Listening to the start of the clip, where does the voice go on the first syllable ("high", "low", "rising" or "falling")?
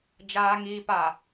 low